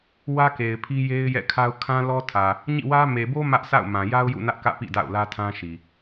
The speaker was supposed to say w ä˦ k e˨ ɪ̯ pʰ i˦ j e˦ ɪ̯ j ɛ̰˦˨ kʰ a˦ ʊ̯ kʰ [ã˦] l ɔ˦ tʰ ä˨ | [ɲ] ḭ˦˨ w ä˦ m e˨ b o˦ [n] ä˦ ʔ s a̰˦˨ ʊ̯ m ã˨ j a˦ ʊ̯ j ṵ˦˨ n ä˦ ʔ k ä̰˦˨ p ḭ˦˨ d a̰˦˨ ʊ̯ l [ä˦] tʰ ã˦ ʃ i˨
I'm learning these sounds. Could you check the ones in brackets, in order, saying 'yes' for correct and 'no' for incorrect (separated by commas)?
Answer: yes, yes, no, yes